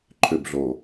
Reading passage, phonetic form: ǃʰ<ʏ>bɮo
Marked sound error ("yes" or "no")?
no